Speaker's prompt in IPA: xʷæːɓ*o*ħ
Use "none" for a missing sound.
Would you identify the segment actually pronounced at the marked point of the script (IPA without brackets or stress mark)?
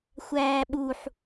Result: u